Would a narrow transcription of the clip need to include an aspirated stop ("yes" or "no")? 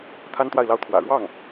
yes